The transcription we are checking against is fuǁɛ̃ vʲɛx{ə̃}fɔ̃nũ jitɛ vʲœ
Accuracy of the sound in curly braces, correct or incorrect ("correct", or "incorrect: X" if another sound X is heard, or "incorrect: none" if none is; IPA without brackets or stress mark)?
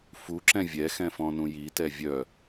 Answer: incorrect: ɛ̃